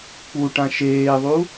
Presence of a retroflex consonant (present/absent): present